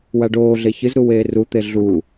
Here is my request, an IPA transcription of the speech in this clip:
waɖoːɮe çɨzɾu weːrut̪e ɮu

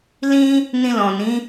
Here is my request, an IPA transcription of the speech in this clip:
lĩ˦ | nĩ˧lɔ̃˨nĩ˨˦

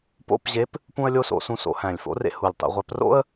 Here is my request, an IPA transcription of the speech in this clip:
po̰˧˥˧pʑe˧˥p | pũ˥ə̯lʲo˥so̰˧ sũ˧so̰˩˧ hæ̃˨˩lʲfo̰˧˥rḛ˧ hu˨˩lʲtˤḭ˩˧ʁʷæ˧˥p ro̰˥ə̯

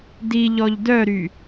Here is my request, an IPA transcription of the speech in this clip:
diʎɔʎ dœɾy

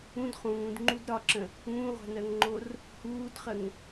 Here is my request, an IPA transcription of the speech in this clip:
ũd χũːdŋ͡ǃud ɾɒǁə̃ | ũːʁʷa̤nɜŋŋ͡ǃor | huːdχəŋ

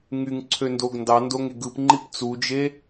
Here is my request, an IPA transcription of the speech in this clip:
ŋyŋǀʰøndoɡ ndɑndoŋe ɡɯpŋ͡ǃip t͡sud͡ʒe

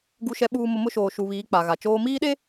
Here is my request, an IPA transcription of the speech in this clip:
ɡu˨ʃɛ˨ɓuː˨mʊ˨ mʊ˦ʃoː˨ʃu˨βiː˨˦ k͡pa˨ɣa˨t͡ʃoː˦ miː˦ɗe˦

